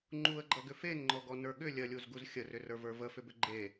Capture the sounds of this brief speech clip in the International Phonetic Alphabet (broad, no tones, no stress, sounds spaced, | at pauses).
ŋ͡ǃ u ə̯ ɡ͡ǃ ʌ ɡ ʏ f e n ŋ͡ǃ ɔ ɡ ɔ n ə˞ ɠ ʏ lʲ ɜ lʲ u z ɡ u z xʲ ə r ʏ r ə˞ v ə˞ v ə f ʏ b ʏ ɡ͡ǃ e